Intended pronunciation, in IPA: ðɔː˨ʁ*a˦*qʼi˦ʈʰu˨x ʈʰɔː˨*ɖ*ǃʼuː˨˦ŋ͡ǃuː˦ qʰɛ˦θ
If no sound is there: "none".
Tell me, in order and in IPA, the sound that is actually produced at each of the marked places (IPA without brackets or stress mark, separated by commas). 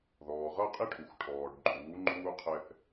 ʌ˦, ɖ